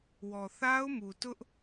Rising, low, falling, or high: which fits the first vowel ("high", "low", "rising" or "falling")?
low